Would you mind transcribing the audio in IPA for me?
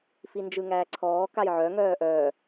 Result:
f i n d͡ʒ ɯ ŋ æː ǀʰ ɔː k a j ʕ œ ŋ œː ʔ œː

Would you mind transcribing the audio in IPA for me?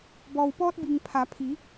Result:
b ɔː˩ w p ɔː˧ t̚ b i˩ ŋ pʰ a˩˧ pʰ i˩˧

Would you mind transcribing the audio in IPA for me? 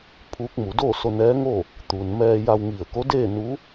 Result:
pʰ uː˧˥ k̚ m u˩˧ d o˥˨ s o˧ n ɛː˧˥ ŋ o˥˨ | t̪ u˩ n m ɛː˧ j a˧ w ŋ i˧˩ ə̯ k o˧˥ d eː˥˨ n u˧˥

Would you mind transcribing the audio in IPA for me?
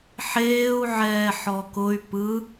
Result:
ħ eː u̯ ʕ ɛː ħ ɔ k ʊ y̯ p ɯ

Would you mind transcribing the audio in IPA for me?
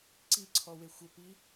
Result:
ǀ i ǀʰ ɔ w e xʷ ə p i

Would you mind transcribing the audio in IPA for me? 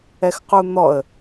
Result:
ɛ x q u n̪ ɔ ə̯

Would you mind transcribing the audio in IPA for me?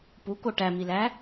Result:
p u k o ʈ æ m i l æ

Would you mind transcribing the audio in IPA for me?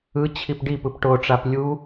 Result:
ɯ t͡ɕʰ i p ɖ i p ɯ p ʈ o ʈ͡ʂ a p lʲ u

